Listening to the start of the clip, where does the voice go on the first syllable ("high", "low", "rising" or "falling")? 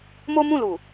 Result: high